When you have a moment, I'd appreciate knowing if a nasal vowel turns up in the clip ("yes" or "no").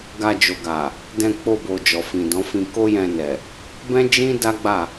yes